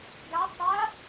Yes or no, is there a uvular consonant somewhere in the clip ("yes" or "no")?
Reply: no